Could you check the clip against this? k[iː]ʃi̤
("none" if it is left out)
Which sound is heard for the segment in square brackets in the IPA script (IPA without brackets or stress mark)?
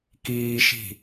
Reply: iː